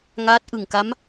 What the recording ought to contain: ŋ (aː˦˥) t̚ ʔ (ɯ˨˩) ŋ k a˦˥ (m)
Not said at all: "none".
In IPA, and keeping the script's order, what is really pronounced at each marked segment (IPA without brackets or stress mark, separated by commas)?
aː˦˥, ɯ˨˩, m